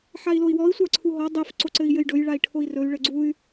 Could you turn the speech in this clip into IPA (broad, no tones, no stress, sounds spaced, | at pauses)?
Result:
ħ a i̯ l o i̯ w ɔ i̯ sʷ a ǀʰ u ɦ ɔ dˤ e f ǀ o ǀ ɘ i̯ j ɘ j ɖ ɵ j ɭ a i̯ ʈʰ o i̯ r ɵ y̯ ɭ ɘ ɡ͡ǀ u y̯